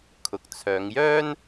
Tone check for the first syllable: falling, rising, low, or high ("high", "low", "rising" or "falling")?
low